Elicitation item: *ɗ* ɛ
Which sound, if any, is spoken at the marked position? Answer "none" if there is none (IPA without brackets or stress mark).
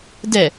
d